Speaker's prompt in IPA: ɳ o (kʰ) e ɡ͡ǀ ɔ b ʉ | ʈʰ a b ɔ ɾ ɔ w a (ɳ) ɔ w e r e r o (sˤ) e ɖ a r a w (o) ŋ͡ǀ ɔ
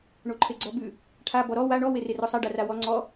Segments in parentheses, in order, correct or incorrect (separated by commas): incorrect, correct, correct, incorrect